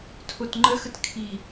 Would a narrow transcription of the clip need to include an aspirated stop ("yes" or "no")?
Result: yes